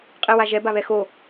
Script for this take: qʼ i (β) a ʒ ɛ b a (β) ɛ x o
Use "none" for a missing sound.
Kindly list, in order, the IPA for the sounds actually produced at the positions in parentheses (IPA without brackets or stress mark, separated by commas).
w, β